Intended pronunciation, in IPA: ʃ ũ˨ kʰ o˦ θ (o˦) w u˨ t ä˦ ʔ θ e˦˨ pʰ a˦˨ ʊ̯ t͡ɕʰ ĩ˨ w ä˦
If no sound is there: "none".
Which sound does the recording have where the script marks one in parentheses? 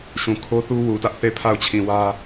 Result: u˦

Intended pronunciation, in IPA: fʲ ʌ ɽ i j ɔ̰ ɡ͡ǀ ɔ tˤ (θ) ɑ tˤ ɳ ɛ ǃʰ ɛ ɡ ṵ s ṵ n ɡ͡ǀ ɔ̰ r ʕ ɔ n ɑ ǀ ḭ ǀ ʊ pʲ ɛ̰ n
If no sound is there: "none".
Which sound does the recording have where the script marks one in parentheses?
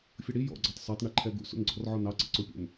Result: s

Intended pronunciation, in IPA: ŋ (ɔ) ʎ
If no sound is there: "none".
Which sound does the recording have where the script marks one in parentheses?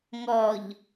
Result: ɔ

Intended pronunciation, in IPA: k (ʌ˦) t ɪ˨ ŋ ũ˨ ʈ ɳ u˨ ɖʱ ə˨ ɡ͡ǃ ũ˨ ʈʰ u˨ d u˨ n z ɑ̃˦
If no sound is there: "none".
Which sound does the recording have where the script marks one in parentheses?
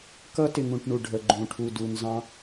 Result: ʌ˦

